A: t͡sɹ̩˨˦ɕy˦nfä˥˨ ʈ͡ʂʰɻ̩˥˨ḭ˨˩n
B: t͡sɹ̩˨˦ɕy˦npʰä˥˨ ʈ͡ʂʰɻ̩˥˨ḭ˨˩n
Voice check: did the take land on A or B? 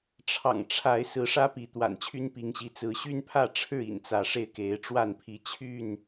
B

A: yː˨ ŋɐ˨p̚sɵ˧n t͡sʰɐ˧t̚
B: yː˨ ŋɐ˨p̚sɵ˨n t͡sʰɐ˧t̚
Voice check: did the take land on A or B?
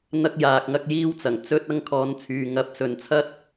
B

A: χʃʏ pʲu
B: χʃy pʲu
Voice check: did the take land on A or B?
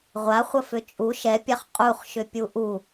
A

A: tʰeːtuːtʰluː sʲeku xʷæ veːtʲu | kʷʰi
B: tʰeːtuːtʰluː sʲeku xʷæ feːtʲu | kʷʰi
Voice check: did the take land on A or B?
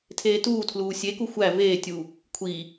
A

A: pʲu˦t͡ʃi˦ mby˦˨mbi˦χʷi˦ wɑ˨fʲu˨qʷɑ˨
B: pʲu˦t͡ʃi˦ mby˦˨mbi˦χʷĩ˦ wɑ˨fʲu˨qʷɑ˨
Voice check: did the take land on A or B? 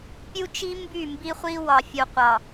A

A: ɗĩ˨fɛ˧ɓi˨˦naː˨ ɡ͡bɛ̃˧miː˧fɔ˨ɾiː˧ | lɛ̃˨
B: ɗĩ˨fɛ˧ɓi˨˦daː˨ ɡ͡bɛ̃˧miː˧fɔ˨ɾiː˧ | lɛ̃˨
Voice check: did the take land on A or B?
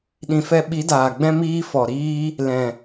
B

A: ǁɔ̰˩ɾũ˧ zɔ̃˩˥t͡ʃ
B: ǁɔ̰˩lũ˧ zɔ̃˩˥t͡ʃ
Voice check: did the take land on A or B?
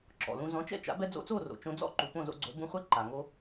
B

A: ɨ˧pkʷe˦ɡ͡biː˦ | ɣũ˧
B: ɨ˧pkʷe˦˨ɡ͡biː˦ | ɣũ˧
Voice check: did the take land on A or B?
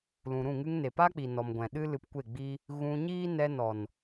B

